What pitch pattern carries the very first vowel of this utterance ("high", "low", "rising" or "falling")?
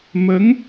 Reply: rising